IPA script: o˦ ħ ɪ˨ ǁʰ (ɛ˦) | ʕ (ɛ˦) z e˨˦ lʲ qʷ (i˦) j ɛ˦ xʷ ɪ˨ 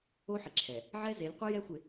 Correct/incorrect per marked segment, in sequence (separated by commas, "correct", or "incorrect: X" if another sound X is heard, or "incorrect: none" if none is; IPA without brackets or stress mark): incorrect: ɛ˨, correct, incorrect: ɪ˦